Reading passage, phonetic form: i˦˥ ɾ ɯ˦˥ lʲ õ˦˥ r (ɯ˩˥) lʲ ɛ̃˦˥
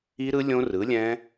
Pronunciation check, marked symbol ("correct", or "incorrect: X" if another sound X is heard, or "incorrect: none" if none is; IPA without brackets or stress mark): correct